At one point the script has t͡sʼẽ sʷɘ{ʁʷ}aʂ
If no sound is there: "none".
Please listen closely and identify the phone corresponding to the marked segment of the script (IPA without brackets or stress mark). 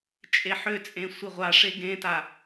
ʁʷ